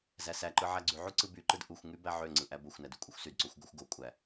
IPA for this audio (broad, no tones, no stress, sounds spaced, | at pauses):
z æ s æ ǃ ɯ ʕ æ ɡ͡ǀ y ʕ u ǀ ɯ b y ǃ ɯ d ʔ u xʷ ŋ y b æ ʕ ø ŋ͡ǀ ɯ ʔ æ b o xʷ n æ d y kʷʼ ɯ xʷ s y d ǀ o xʷ ɡ o xʷ ɡ o kʷʼ æ